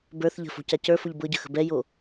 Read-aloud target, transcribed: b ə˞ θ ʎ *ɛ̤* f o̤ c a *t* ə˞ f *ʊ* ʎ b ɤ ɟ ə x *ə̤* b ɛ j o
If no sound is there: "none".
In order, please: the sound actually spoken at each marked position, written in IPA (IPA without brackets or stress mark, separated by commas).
ə̤, c, ʊ, ə̤